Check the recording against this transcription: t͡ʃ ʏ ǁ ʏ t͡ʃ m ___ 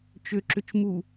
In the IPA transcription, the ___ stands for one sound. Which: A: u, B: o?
A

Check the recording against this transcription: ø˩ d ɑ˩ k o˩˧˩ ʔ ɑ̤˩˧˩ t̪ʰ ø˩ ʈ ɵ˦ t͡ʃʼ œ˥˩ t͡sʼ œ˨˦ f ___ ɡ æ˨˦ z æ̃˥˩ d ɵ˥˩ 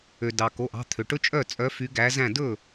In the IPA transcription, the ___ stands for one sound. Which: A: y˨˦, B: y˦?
A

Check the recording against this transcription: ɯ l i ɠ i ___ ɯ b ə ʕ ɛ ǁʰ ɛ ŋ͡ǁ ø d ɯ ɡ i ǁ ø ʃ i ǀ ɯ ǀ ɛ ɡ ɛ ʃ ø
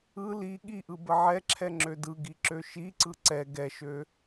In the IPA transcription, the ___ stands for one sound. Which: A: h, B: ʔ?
B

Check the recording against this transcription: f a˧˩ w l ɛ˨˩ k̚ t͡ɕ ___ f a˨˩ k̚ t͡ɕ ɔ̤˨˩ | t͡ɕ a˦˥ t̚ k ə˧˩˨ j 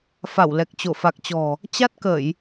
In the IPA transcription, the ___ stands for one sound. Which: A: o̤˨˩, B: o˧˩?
B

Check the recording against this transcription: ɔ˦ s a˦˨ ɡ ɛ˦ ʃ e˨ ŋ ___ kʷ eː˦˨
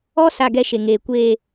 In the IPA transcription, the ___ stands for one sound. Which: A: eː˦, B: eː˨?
B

